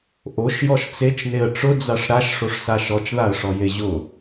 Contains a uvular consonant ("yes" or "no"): no